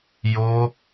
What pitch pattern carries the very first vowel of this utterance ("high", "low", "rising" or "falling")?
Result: high